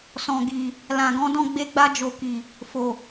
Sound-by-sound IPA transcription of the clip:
sɔ̃˨ɡi˨ | lã˨ɡɔ̃˨˦dɔ̃˦˨ ɡ͡be˧ɡ͡ba˧d͡ʒo˨ki˨ | fo˨

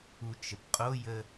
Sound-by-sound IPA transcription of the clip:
ut͡ʃəpqʼojə

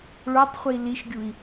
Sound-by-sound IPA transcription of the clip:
ɭotˤχʷi liʃɡʲui̯

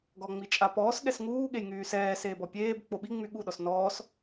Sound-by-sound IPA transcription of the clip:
ɡɔŋ͡mit͡ʃʼapɔːs ɠɛsŋuːɠej ŋyːsɛːs eːbɔpʲeːb k͡poɓiŋ͡my ɠuɗɔs nɔːs

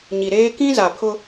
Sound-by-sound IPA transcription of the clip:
ɲi˨ɾeː˦ kĩ˦za˨pʰʊ˦

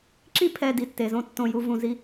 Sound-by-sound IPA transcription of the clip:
ǁi˦ pʰɛ˨ di˨tːe˨zõ˦ tːõ˦˨ju˦ vũ˨zi˦

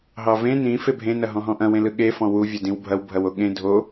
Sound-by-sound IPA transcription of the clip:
ɦɑvẽ nĩ febʱẽ nɐɦɔ̃ɦɔ̃ʔɐ̃ wẽlɯɠe fɔ̃wu vʲɤdĩwbʱɐw bʱɐwoɠẽ dʱo

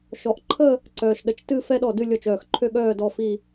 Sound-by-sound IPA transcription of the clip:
ʃɔ˨˦ʔ ǃʰə˥˧ | ǀœː˨ʃɗə˨˦t͡ʃtɨ˥˧ fɛ˥ɗɔ˥˩dɨ˥˧ lʲɔ˥˩t͡ʃœː˥˩xǃʰø˥ɠœː˥˧ dɔ˥˧fi˥˧

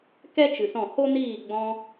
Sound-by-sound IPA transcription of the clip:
kɛ˦ t͡ʃɨ˨sɔ̃˦˨ ho˦niː˦˨ ɡ͡bɔ̃˧

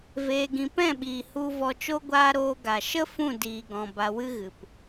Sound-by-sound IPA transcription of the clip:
veː˧ɡĩ˧ pɛ̃˦˨ɓiː˨ hu˧ vɔ˧t͡ʃo˦ɡʷaː˦ ɾoː˧ɡa˨ ʃə˦ fũ˦˨diː˨ɡɔ̃˨ ba˧wɨ˦ ɣɨ˨p

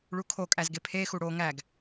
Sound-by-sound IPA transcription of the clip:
ɭukʰokʼæz ɡepʰexu ɽo ŋæɡ

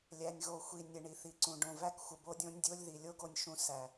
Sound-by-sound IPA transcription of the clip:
lʲæ˨nʲɣo˨xʷi˨ nʲə˨ɳi˨θi˨ǀũ˨ ɖõ˨væ˦kxʷə˨ bo˦dʲõ˦nʲdʲo˦lʲði˨ lʲo˦ɡo˨nʲʃũ˨ sæ˨

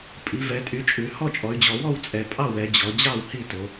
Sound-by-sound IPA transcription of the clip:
pʼi˩˧vɛ˩˧tʼy˩˧t͡ʃʼʉ˩˧ hɔ˥˩t͡ʃʼɔ˩˧y̯d͡ʑɔ˩˧ wɔ˥˩wt͡sʼɛ˩˧pʼɑ˥˩wɛ˩˧ d͡ʑɔ˩˧ d͡ʑɑ˥˩w hi˥˩to˩˧

